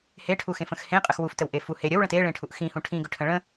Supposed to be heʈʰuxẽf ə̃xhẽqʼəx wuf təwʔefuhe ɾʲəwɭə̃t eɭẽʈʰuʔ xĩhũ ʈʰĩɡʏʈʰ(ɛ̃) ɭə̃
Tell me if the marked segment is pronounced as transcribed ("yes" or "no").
no